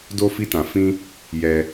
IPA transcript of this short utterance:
do˦fi˦tã˧ fĩ˦ | jɛ˧

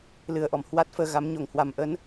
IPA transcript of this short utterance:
lɨ˨˩ə̯ʔɔ˧˩m hwa˦˥t̚fəː˧ɣa˨˦m ɲo˧˩ŋhwa˨˩m ʔə˨˦n

